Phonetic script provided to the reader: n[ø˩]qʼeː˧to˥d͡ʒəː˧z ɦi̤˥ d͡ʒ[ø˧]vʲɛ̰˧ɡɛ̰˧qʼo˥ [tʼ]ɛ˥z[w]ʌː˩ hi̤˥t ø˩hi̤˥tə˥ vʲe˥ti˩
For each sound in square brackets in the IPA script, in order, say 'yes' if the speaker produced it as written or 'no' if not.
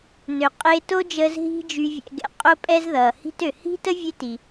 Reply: yes, no, no, no

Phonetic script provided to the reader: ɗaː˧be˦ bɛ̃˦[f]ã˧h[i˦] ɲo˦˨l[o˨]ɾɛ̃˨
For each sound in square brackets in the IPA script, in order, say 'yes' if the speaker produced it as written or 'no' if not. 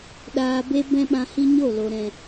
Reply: no, yes, yes

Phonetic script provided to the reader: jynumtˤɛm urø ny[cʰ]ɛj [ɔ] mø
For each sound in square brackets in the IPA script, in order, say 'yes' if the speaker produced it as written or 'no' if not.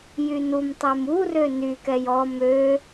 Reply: no, yes

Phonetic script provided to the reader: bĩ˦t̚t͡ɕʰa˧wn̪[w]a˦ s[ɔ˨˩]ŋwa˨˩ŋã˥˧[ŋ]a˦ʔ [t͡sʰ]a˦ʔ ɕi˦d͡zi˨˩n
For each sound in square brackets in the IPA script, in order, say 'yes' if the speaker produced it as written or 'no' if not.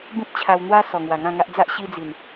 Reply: yes, yes, yes, no

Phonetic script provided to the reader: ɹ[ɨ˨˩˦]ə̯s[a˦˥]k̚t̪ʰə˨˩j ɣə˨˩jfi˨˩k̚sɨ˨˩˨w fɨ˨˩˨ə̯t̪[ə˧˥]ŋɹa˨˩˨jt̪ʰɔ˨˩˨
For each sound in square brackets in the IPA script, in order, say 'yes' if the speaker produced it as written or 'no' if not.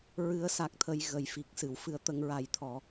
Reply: yes, no, no

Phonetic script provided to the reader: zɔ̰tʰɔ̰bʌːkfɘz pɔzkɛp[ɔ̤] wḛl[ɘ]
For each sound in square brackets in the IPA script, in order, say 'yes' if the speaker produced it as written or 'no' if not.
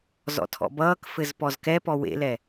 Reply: no, no

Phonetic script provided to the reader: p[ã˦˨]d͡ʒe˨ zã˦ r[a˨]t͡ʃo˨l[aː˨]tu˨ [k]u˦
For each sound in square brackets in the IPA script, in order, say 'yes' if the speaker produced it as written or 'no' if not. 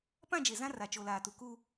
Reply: yes, yes, yes, yes

